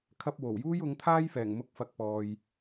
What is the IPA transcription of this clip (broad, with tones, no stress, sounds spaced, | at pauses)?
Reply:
kʰ ɐ˥ p̚ w o˨˩ w j uː˥ j ʊ˨˥ ŋ t̪ʰ aː˥ j f ɛː˨˩ ŋ m ʊ˧ k̚ f ɐ˨ k̚ p ɔː˨ j